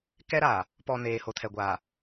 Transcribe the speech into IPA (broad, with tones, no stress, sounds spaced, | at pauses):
k ɛ˦ ɾ aː˨ | p ɔ˨ n eː˨ h o˨ tʰ ɛ˨ ɡʷ aː˨